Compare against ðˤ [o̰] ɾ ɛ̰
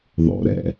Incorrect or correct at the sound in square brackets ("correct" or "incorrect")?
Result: correct